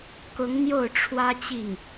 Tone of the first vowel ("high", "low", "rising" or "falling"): rising